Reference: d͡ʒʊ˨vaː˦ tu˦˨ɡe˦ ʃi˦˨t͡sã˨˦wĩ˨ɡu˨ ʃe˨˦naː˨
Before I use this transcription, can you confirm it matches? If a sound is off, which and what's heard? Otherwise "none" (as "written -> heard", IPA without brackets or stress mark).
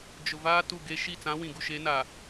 none